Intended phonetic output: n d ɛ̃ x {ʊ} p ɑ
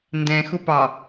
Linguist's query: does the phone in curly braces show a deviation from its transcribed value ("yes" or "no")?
no